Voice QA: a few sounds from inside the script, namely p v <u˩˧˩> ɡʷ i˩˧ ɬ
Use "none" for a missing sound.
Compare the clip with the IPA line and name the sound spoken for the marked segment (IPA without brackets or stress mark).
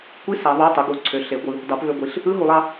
ø˩˧˩